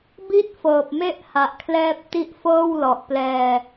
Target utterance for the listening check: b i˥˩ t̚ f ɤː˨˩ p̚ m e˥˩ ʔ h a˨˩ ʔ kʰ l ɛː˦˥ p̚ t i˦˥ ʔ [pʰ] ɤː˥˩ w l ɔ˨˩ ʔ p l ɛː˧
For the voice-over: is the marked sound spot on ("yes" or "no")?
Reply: no